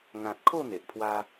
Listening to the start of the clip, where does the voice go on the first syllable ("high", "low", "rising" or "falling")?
low